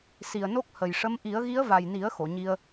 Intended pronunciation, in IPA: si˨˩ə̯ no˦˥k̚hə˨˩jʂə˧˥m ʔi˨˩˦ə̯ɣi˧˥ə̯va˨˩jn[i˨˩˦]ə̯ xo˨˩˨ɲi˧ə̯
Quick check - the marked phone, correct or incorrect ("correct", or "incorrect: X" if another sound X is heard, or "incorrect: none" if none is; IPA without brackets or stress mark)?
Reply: correct